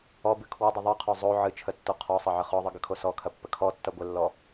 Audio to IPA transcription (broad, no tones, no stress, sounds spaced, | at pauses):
ɔ b ɨ kʰ w ɨ dˤ ɨ ðˤ ɯ qʰ o zˤ o ʕ ɨ t͡ʃʰ ə tː o qʰ ɔ sˤ ɐ ʕ ə χ ɔ ðˤ ɨ ɡ ə kʰ o s ɔ kʰ ɐ pː ə kʰ ɔ tː ɐ ɡʷ ə lː ɔ